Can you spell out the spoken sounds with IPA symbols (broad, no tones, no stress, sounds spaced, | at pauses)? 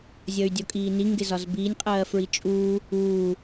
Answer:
zʲ ʌ y̯ dʲ ɔ kʼ iː n i ŋ ɡ ɪ z ɒ z b iː nʲ qʼ ɜː f ɹ i t͡ʃʼ uː | uː